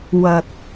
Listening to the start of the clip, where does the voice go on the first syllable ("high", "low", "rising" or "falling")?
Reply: low